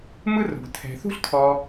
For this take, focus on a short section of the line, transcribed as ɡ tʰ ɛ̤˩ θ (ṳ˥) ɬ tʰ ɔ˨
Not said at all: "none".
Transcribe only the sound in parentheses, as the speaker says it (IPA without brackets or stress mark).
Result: ṳ˥